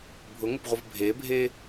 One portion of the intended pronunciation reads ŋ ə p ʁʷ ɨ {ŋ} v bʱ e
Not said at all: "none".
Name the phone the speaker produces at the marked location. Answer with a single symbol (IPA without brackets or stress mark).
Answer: none